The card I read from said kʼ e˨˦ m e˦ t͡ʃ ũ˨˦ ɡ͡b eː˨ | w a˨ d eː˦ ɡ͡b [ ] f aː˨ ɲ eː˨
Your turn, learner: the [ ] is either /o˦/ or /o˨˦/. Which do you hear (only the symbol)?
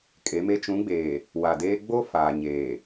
o˦